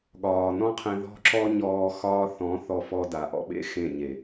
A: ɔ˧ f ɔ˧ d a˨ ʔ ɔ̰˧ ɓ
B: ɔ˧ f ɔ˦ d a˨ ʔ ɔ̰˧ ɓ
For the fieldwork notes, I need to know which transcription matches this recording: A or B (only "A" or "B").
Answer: A